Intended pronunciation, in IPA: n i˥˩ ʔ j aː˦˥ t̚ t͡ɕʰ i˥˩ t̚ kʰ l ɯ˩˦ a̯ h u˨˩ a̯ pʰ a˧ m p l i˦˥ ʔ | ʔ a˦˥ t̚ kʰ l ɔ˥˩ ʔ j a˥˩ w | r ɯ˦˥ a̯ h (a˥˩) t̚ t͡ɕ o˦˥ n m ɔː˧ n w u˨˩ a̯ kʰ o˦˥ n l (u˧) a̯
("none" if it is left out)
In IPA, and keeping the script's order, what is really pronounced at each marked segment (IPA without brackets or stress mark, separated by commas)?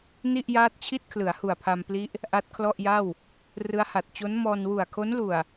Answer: a˨˩, u˨˩